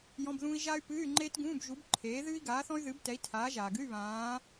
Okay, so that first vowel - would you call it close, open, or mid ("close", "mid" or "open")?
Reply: mid